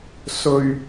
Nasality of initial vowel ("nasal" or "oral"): oral